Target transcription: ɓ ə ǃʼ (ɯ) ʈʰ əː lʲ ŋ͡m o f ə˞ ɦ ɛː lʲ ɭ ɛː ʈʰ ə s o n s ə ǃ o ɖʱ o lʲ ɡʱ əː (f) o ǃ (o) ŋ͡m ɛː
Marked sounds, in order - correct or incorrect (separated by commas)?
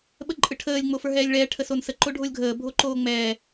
correct, incorrect, incorrect